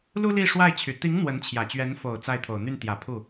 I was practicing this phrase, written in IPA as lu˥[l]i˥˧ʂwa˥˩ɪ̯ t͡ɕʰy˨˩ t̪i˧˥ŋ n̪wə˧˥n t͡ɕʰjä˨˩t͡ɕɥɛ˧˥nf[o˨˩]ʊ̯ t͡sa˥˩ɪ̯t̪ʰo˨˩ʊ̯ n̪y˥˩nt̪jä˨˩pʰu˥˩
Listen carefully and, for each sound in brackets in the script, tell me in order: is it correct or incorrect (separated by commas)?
correct, correct